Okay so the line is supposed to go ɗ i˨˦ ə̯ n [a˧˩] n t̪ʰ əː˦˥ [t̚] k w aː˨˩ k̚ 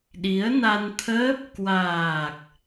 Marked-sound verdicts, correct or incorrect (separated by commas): incorrect, incorrect